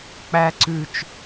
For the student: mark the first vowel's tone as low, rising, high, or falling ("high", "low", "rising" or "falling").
low